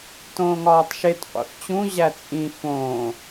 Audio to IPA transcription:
t õː ŋ ɒː tˤ ʃ e t qʷ ḛ f t͡ɕ ũ ʑ æ t͡sʼ ĩ f õː

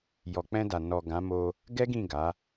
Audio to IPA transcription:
j ɔ˨ k͡p ɛ̃˧ d a˨ n ɔ˨ ɡ ã˨˦ m o˧ | ɡ ɛ˦ ɡ ĩ˦˨ ɡ a˨˦

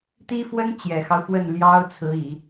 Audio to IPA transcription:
t̪ i˥ f w ə˥ n t͡ɕ j ɛ˨˩ x ɑ˦ ʊ̯ f w ə˥˩ n l j ɑ˥ ʊ̯ t͡sʰ ɹ̩˧˥ i˨˩˦

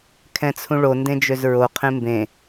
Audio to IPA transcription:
kʰ ɛ̃ t͡sʰ ũ ɭ o n d ẽ d͡ʒ ø z ɹ o qʰ ẽ m b ẽ

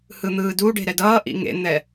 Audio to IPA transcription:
h ɯ n̪ ɯː d u ɖ e̤ ɾ ɛ d ʌː ʔ ḭ ŋ ḛ n̪ ɛ

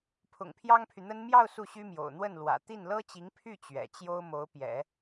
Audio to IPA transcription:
pʰ ʊ̰˨˩ ŋ pʰ j ɑ˥ ŋ pʰ y˨ n̪ ə˥ n m j ɑ˥˧ ʊ̯ s u˥˩ ɕ y˥ m j o̰˨˩ ʊ̯ n̪ w ə˥˩ n l w ä̰˨˩ t̪ i˥˩ n l ɤ˥ t͡ɕ i˧˥ ŋ pʰ y˥˩ t͡ɕ ɥ ɛ̰˨˩ t͡ɕ j o˥ ʊ̯ m o˧˥ ʊ̯ p j ɛ̰˨˩˦

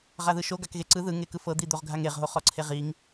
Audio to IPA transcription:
ʁ a ð ɯ ʃ o ɡ a k ɣ e ǀ ɯ ð ɯ ŋ e k ɯ f ɤ d̪ i d̪ o ʁ ɡʱ a ŋ e ʁ ɦ o χ ɔ ǀʰ e ʁ i ŋ

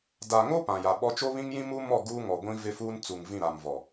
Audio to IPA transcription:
d a˨ ŋ o˦ p ã˨ j a˨ ɓ ɔ˦ t͡ʃ o˦ β ĩ˦ ŋ j ĩ˦ m u˦ m ɔ˦˨ ɡ uː˦ ŋ ɔ˨ ɡʷ ĩ˦ v ɪ˦ f uː˦ n t͡s u˨ ŋ v ĩ˦˨ ɾ a˨ m v ɔ˨

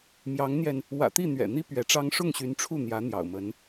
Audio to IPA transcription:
m j ɑ˧˥ ŋ n̪ j ɛ˧ n | w ä̰˨˩ t̪ i˥˩ n̪ ɥ ɛ̰˨˩ n̪ i˥ p ɥ ɛ˧˥ ʈ͡ʂ ɑ˥ ŋ ʂ ʊ˥˩ ŋ ɕ y˧˥ n ʈ͡ʂʰ u˥˩ n̪ j ä˧˥ n̪ j ɑ̰˨˩ ʊ̯ m ə˧˥ n

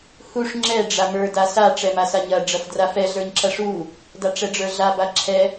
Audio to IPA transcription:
h u ʂ ŋ͡ǁ ɛ ɖ͡ʐ a m ə˞ d a s a ʈ͡ʂ ɛ m a s a ɲ ɐ ɖ͡ʐ ɐ f d r a f ɛ ɮ ə˞ ɲ ǁ ɐ ʂ u | d a ʈ͡ʂ ɛ ɖ͡ʐ ə˞ ɮ a b a ǁʰ ɛ

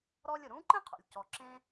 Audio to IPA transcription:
ɾ ɔ˧ lʲ ʊ˩ ɾ ũ˧˥ ǃ ẽ˥ qʰ o̰˩ lʲ c ɔ˩ ǁ ẽ˧

